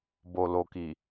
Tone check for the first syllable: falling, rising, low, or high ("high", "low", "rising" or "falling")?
low